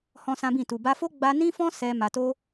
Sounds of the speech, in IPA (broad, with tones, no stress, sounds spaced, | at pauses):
h ɔ̃˦ s ã˦ b ĩ˦˨ t u˨ b a˧ f o˦ ɡ͡b a˧ n ĩ˦ f ɔ̃˦ s ɛ˧ m a˧ t o˦